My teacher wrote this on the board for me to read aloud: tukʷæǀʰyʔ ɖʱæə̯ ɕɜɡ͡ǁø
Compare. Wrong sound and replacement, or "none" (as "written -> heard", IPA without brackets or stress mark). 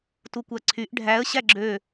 ɜ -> æ